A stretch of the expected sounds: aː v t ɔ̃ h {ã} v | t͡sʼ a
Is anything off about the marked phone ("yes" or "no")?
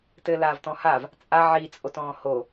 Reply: yes